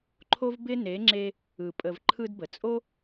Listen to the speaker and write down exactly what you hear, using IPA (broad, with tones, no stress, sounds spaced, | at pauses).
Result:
ǃʰ o˦ v b ɪ˦ n e˨˦ ŋ͡ǁ e˧ | ɯ˨ pʼ ə˨ v ǃʰ ɯ˧ d b ə˨ t͡sʼ o˦